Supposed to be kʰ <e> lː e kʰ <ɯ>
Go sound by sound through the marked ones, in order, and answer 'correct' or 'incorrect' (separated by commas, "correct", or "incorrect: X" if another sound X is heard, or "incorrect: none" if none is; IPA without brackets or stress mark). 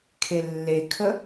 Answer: correct, incorrect: ə